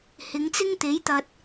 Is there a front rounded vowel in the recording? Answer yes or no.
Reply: no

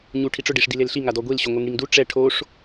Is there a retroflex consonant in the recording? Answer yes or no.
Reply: yes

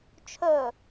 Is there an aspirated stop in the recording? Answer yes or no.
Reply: yes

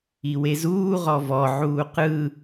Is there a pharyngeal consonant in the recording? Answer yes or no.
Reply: yes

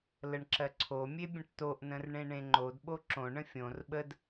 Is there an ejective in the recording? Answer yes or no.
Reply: no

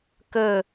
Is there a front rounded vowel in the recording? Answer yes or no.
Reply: no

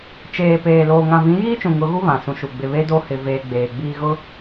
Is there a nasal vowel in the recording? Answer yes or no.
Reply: yes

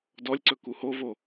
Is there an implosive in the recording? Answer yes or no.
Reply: no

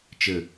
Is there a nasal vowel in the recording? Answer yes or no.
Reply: no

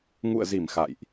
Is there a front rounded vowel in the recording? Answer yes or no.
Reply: no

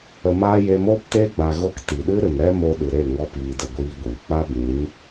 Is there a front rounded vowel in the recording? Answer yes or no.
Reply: no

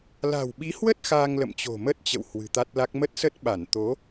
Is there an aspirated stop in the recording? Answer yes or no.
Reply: no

